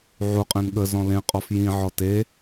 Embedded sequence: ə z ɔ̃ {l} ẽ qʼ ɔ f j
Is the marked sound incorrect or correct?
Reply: correct